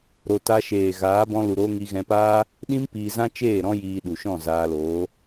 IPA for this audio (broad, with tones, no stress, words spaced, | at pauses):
ɾo˨ ta˧ʃeː˨ɣaː˨˦ bɔ̃˧lu˨ɾoː˧ ŋi˧ ɣɛ̃˧paː˦ | ɗĩ˦m piː˧zã˦t͡ʃeː˦˨ ɾɔ̃˦jiː˧ɗu˨ʃɔ̃˦˨ zaː˧loː˨˦